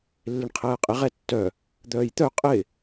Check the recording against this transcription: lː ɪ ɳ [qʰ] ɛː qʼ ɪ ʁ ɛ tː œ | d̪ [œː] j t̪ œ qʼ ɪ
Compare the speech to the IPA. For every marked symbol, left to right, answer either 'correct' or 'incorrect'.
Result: correct, correct

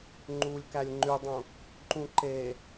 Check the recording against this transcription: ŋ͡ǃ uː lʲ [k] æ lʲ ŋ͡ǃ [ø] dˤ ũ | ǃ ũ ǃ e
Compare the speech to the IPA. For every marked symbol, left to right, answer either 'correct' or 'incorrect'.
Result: correct, incorrect: y

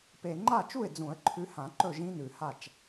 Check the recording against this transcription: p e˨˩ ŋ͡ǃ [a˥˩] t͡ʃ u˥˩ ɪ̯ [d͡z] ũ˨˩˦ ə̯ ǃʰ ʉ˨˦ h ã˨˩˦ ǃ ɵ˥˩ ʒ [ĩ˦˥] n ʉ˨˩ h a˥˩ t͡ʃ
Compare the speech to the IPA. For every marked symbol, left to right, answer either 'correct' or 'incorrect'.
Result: correct, correct, correct

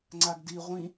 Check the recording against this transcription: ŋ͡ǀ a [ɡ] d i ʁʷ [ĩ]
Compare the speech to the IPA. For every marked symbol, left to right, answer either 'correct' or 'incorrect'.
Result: correct, correct

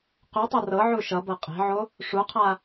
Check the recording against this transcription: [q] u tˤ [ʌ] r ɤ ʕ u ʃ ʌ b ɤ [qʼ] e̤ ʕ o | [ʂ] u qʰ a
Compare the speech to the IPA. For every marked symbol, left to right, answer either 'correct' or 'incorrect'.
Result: correct, correct, correct, correct

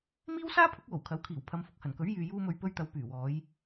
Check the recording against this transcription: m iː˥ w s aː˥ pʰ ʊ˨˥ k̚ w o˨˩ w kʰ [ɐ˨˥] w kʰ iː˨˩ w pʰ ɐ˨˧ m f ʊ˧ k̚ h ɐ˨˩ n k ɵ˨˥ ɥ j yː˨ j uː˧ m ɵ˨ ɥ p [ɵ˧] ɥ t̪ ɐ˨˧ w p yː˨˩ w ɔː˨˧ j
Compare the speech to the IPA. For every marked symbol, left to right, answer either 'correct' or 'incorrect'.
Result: correct, correct

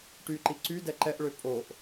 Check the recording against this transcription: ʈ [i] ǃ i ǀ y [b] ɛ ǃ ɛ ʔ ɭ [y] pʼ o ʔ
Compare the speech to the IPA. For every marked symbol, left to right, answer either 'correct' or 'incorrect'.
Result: incorrect: y, incorrect: d, incorrect: ø

